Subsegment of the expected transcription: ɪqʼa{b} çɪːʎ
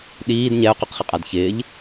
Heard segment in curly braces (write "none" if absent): d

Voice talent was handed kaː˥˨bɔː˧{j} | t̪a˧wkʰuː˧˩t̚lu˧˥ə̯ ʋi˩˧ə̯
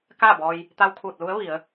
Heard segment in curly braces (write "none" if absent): j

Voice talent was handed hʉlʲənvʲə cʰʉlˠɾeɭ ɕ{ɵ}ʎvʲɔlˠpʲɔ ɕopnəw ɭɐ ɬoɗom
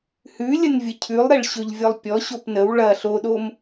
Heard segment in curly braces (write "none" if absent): ɵ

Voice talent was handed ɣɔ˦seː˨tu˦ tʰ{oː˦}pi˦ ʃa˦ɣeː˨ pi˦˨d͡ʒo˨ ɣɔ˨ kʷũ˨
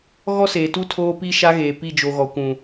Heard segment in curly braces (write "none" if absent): oː˦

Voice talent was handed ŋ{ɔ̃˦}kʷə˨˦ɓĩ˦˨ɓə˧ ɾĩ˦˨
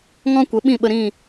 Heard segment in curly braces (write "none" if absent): ɔ̃˦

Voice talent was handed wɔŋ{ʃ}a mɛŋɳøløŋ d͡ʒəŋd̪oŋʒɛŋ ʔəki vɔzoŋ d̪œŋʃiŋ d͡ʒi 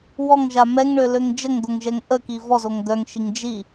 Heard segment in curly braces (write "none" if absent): ʒ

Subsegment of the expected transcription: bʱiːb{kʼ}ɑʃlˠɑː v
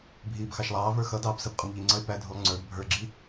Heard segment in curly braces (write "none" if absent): x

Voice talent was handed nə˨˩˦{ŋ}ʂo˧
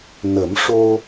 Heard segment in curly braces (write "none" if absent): m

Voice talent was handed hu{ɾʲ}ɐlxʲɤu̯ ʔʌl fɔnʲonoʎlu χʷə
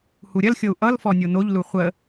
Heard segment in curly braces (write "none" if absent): ɾʲ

